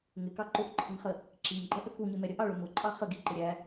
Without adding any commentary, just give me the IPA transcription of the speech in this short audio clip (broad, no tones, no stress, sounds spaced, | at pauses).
ŋ ɪ k ɑ ǃ ʊ ʔ ǃʰ ə ŋ χ ə | ǁ i ŋ ɡ͡ǃ ɜ ʔ ə k u ɲ ɪ m ɛ ɾʲ ə ʔ ɑ ɭ ʊ m ʊ ǃʼ ɑ χ ə ɡ i ǃ ɪ ɾʲ æ